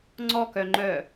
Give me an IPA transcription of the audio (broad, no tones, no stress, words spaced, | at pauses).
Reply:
ŋ͡ǀɔkœŋ͡ǃœ